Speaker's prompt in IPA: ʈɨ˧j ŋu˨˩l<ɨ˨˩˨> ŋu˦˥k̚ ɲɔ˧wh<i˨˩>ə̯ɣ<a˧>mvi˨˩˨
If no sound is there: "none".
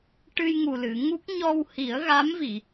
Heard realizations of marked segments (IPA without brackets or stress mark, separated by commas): ɨ˨˩˨, i˨˩˦, a˧˥